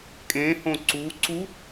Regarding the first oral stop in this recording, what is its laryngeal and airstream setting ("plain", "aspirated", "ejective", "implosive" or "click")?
ejective